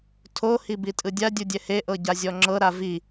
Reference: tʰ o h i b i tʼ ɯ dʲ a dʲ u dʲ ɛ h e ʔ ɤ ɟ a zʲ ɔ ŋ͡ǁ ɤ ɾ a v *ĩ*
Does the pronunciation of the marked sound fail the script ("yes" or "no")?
yes